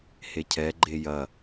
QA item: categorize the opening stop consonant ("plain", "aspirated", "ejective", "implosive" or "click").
aspirated